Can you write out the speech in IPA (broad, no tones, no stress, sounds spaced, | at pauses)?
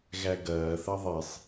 ɣ æ ɡ ɐː θ ɐ ðˤ i sˤ